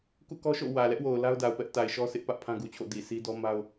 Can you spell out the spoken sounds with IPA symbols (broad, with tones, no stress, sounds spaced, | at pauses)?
k ṵ˦˨ k ɔ˦ ʃ o̰˦˨ w ä˨ l ɛ˦ ʔ w o˨ ʊ̯ l a˦ ʊ̯ d a˨ ʊ̯ p ɛ˦ ʔ t a˨ ɪ̯ ʃ ɔ˦ s ɪ˦ ʔ p ä˦ ʔ pʰ ã˦ ɡ u˨ t͡ɕʰ o̰˦˨ d i˨ sʰ i˦ d ɔ˦ m a˦ ʊ̯